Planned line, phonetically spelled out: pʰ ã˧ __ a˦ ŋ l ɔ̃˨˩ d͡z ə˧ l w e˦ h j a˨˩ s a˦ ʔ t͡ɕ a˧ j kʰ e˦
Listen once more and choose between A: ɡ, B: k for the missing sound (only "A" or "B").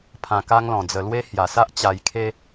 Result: B